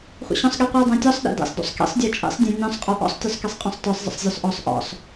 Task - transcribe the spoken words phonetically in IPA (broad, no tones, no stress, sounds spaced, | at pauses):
χʷ ə̰ ɕ ɔ̃ sˤ ɠ i qʷ œ dˤ ã tʲ ɔ sˤ ɗ ḛ d ḛ sˤ d o̰ sˤ k ḭ sˤ dʲ ə˞ t͡ʃʼ ḛ sˤ dʲ ã nʲ ɔ̃ sˤ qʼ ɔ ʔ ɔ̰ sˤ tʲ ø sˤ k i sˤ qʼ ɔ̃ sˤ t ə˞ sˤ zˤ ə̰ sˤ zʲ ɵ sˤ ʔ ɔ sˤ ʔ ɔ̰ sˤ